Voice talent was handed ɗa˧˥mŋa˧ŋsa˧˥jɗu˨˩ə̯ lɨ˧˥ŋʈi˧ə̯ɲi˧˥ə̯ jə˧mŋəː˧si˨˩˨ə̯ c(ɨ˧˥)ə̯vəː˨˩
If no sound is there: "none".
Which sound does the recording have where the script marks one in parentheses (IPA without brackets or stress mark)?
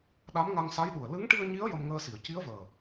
i˧˥